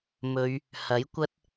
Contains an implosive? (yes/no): no